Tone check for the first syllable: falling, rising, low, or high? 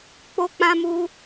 high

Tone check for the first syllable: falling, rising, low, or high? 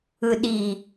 low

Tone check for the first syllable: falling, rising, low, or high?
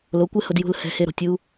rising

